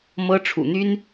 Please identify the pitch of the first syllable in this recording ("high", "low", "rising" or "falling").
high